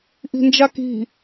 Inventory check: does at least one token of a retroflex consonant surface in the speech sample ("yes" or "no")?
no